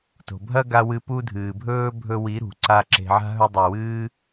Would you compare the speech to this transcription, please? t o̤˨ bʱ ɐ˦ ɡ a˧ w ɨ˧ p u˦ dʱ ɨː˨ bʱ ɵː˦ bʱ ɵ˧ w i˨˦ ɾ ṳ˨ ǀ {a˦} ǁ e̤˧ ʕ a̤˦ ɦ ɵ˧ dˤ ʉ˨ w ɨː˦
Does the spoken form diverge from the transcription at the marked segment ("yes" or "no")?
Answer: no